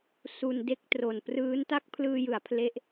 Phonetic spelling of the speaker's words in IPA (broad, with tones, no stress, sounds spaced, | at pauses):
s u˧ n d e˥˩ k̚ t r o˨˩ n p r ɯː˦˥ n t a˥˩ k̚ pʰ l ɯː˧ j ɯ˩˦ a̯ pʰ l e˦˥ ʔ